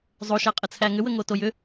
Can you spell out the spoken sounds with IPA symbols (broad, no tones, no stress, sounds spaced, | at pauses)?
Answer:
zˤ o ʃ æ qʼ ə t͡sʰ æ ŋ ʏ w ə ŋ o t o j ʏ